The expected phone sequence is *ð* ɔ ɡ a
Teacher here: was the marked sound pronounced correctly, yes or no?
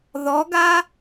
yes